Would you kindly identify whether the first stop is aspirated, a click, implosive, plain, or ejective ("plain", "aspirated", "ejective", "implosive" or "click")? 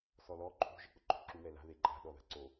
click